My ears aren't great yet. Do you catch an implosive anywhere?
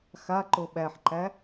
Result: yes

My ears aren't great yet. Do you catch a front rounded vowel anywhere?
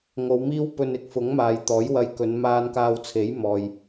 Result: no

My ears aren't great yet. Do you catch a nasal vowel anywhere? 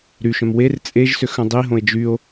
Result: yes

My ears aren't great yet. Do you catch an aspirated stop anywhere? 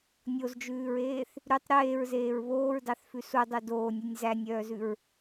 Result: no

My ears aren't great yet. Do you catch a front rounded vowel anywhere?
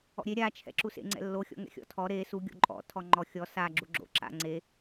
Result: no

